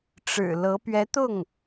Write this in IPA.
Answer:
ʈ͡ʂ ɻ̩˨˩ l ɤ˧˥ p ɥ ɛ˧˥ t̪ ʊ˥˩ ŋ

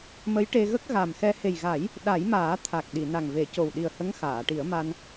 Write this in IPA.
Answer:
m ə˧˥ j ʈ e˧ ɣ ə˦˥ k̚ ɣ a˨˩ m x ɛ˧ h e˨˩ j ɣ a˨˩˦ j | ɗ a˨˩˦ j m aː˨˩˦ t̪ʰ a˨˩ k̚ ɗ i˨˩˨ n a˨˩ ŋ v e˨˩˦ c o˨˩ w ɗ i˨˩ ə̯ h ə˧˥ ŋ x aː˨˩˨ ʈ i˨˩˦ ə̯ m a˧ n

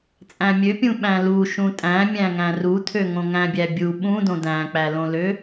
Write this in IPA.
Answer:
t͡sʼ æ̃ mʲ ø pʲ ũ ɓ æ̃ l u ʃ ũ tʼ æ̃ mʲ æ̃ ŋ æ̃ r u tʰ ø ŋ õ ŋ æ̃ bʲ æ bʲ u ɓ ũ d õ d æ̃ k͡p æ l õ l ø

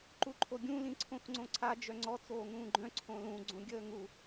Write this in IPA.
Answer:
ǃ u ǃʰ o ɡʲ ũ l ĩ ǀʰ õ x ŋ͡ǀ õ ǀʰ a d͡ʒ œ ŋ͡ǀ ɔ t͡s oː ŋ ũː ɡ͡ǃ œ̃ ǀʰ õ l ũ ɡ͡ǀ õ ɡʲ əː ŋ u

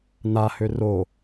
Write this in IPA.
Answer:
n a h ø r o

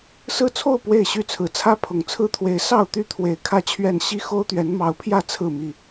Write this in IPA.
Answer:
s ɹ̩˥˨ t͡sʰ o˥˨ ʊ̯ p w e˥˨ ɪ̯ ɕ y˥˨ t͡sʰ ɹ̩˨˦ t͡sʰ ä˦ pʰ ʊ˨˩ ŋ t͡sʰ ɹ̩˦ t̪ʰ w e˨˦ ɪ̯ s ɑ˥˨ ʊ̯ t̪ y˥˨ t̪ʰ w e˨˩ ɪ̯ kʰ ä˥˨ t͡ɕʰ ɥ ɛ˥˨ n ɕ i˦ x o˦ ʊ̯ t̪ ɥ ɛ˨˦ n m ɑ˨˦ ʊ̯ pʰ j ä˥˨ t͡sʰ ɹ̩˥˨ m i˥˨

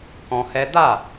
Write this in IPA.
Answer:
k ɔ̃˧ h ɛ˦ d a˦˨

